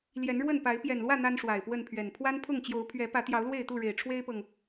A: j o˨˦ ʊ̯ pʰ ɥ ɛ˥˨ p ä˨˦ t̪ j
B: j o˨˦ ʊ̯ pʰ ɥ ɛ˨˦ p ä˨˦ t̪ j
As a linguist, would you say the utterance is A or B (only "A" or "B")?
B